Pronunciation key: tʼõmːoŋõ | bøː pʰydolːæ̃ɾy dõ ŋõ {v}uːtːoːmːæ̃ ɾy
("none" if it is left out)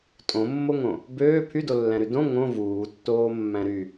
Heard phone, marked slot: v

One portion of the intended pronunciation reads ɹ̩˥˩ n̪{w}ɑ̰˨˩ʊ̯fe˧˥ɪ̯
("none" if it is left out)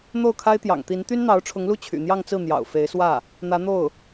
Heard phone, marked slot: j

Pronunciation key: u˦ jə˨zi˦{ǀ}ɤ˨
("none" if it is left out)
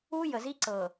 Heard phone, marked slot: ǀ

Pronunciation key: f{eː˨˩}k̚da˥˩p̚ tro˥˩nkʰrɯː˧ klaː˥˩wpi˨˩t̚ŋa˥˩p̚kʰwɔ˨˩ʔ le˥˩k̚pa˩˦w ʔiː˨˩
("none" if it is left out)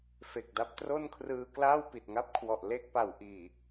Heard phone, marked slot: e˨˩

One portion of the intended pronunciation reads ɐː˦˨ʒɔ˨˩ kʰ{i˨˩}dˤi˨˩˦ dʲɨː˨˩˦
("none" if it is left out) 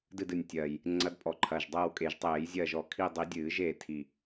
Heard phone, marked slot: i˦˨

